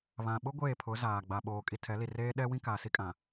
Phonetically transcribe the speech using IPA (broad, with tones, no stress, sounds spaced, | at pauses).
β ã˨ ɓ ʊ˦ ɡʷ eː˦˨ pʰ ʊ˨˦ z aː˨ ɡ͡b a˨ ɓ oː˨ kʼ i˨ tʰ ɛ˨˦ l i˨ r eː˦ ɗ ɛ˦ w ĩ˦ k aː˨ s i˦ kʼ ã˨